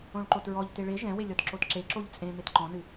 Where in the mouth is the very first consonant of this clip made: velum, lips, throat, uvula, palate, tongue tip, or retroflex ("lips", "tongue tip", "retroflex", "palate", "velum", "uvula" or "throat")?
retroflex